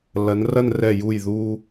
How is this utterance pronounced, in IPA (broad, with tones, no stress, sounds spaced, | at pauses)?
l ɐ˩˧ n r ɐ˥˧ n r ɛ˧˩ j u˧˩ j ð u˧